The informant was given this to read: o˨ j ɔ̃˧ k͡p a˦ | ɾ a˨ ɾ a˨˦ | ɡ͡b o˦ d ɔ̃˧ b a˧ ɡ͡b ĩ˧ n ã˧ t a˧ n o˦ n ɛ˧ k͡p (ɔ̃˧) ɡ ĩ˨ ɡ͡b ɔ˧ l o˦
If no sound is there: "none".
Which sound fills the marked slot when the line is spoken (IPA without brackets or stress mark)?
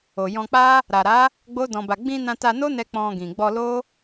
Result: ɔ̃˧